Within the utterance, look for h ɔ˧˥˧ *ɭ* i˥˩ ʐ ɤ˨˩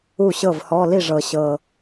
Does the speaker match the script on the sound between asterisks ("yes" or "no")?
no